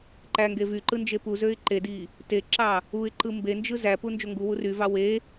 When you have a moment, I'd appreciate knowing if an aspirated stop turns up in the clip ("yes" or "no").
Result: no